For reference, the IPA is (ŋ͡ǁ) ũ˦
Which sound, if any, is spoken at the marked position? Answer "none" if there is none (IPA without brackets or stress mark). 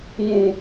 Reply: ŋ